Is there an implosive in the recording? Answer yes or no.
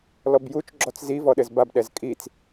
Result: yes